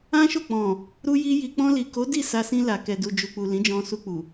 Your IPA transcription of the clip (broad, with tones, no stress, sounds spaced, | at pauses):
ã˦ ʃ o˦˨ k͡p ɔ̃˨ | ɾ u˧ j i˧ j i˧ k͡p ɔ̃˧ l i˨ k o˨˦ d i˦˨ s a˧ s ĩ˧ l a˨ k ɛ˨ d u˨ d͡ʒ u˨ k͡p u˨ l ĩ˨˦ d͡ʒ ɔ̃˧ s u˧ k͡p u˨